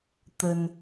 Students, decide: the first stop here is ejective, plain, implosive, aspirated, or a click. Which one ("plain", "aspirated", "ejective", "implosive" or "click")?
plain